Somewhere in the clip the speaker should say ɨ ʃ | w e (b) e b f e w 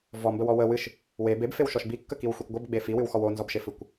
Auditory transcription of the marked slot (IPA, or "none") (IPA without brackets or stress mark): b